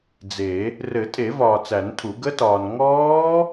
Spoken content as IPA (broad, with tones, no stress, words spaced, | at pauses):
d͡ze˨˩˦ | rɘ˨˩˦tʼe˨˩˦ vɒː˨t͡sæ˨˩˦ntʰu˨˩˦ ɡə˦˥tɒː˨n ŋɔː˦˥